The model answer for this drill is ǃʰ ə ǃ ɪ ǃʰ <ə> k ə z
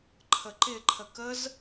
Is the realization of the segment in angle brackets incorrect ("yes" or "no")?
no